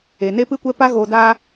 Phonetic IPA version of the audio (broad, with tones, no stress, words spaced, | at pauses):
e˨ne˦pɨ˦ kʷɛ˦pa˦ ɣoː˨daː˧